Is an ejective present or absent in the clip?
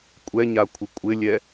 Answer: present